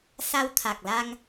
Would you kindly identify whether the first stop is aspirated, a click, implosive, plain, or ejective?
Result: aspirated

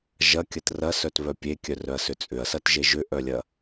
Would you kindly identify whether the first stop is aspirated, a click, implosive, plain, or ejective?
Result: plain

